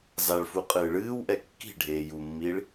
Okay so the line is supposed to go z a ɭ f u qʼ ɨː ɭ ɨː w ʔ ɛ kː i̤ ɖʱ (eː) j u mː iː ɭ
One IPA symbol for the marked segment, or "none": eː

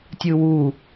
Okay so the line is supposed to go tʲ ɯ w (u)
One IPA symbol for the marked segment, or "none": u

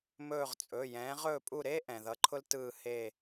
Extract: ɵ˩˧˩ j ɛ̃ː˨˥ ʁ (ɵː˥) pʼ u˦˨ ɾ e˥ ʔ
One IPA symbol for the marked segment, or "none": ɵː˦˨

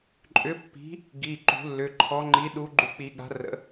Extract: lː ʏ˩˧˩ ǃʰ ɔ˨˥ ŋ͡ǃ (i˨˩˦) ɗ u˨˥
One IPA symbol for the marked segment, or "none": i˨˥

